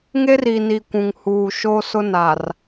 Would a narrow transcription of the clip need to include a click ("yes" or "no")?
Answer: no